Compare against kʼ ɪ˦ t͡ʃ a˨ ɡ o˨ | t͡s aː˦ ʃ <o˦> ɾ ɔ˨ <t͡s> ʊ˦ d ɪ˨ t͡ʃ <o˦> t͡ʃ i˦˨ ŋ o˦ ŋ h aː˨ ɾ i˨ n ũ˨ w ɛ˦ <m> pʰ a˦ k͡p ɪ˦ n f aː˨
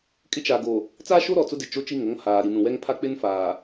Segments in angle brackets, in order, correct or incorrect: correct, correct, correct, incorrect

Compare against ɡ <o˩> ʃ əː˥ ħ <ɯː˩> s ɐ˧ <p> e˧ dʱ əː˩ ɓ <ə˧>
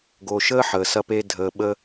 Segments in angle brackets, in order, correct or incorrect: correct, incorrect, correct, correct

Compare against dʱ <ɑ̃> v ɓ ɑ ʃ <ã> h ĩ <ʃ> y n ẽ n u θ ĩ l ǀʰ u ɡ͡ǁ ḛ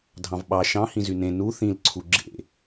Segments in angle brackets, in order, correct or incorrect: correct, incorrect, incorrect

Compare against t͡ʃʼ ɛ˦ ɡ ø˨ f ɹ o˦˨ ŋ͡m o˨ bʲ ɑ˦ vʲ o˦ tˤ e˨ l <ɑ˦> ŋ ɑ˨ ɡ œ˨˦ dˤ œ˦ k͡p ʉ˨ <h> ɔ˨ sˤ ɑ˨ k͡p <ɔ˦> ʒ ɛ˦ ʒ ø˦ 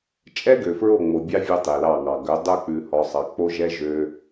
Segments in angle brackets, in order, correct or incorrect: incorrect, correct, incorrect

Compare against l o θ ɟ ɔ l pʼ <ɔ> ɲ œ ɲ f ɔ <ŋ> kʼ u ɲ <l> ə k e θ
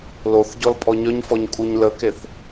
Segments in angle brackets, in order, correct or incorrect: correct, incorrect, correct

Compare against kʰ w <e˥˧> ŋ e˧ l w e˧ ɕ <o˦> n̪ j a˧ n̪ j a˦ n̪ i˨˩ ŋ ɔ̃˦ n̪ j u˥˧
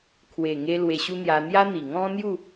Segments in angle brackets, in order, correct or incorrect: incorrect, incorrect

